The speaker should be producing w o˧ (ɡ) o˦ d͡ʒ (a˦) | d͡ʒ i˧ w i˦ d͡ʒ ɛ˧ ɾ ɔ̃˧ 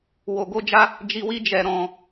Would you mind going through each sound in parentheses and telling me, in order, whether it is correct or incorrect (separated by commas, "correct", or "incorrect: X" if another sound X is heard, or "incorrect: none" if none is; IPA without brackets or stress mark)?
correct, correct